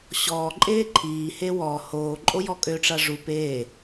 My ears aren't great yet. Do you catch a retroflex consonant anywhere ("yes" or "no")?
yes